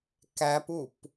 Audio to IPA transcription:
k æ p u p

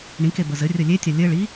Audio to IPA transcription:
ɳ ĩ k e b ə z ɘ rʲ ə lʲ e tʲ a lʲ ɘ ɭ i

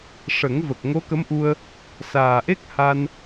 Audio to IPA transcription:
ʂ ə˨˩˦ ŋ v ə˨˩ k̚ ŋ o˧˥ k ə˧˥ m ʔ u˧ ə̯ | s aː˨˩ ʔ e˦˥ k̚ h a˧ n

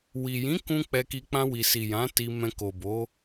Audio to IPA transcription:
w i˨ j ĩ˨˦ k ũ˧ k͡p ɛ˧ k i˧ k͡p ã˧ w i˨ s i˨ j ã˨˦ t i˧ m ɛ̃˧ k o˨ b o˨˦

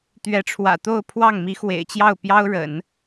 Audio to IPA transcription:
t̪ ɥ ɛ˧˥ ʈ͡ʂʰ w ä̰˨˩ t̪ o˥˧ ʊ̯ pʰ w ɑ˥˩ ŋ m i˧˥ x w ḛ˨˩ ɪ̯ t͡ɕ j ɑ˥˩ ʊ̯ p j ɑ˥ ʊ̯ ɻ ə̰˨˩˦ n

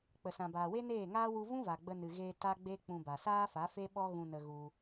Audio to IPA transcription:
k͡p ə˨ s ã˨ b aː˨ w e˦ n eː˦˨ ŋ aː˦ w u˧ v ũ˦ v a˨ ɡ͡b ə˧ n ɨ˨ ɣ eː˧ t a˦ ɡ͡b e˦ k͡p ũ˧ b a˨ s aː˦ f a˨˦ f e˦ ɓ ɔ˦ ɣ ũ˧ n ə˧ ɣ u˧

